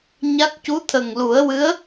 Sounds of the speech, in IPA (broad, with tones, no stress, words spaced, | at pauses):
ɲa˦˥k̚ cu˧˥t̪ʰə˨˩ŋlu˨˩˦ə̯wɨ˧˥ə̯